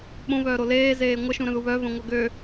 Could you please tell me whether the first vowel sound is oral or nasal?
nasal